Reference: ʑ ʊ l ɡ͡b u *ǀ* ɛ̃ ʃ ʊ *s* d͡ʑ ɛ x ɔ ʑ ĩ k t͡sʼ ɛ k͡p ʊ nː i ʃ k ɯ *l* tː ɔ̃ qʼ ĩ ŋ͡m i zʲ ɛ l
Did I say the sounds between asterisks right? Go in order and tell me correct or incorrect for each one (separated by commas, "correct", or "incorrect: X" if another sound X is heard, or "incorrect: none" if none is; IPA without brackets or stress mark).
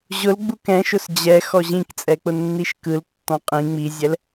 incorrect: k, correct, correct